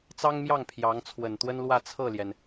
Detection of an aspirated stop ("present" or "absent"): present